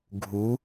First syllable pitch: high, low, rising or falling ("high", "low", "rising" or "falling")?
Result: rising